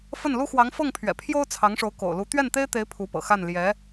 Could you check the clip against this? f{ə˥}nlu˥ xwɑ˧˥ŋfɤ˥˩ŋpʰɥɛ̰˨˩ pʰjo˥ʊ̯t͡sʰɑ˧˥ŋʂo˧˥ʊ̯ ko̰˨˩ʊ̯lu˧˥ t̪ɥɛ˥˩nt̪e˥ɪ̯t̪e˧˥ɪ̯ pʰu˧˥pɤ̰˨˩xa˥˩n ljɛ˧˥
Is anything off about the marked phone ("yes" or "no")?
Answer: yes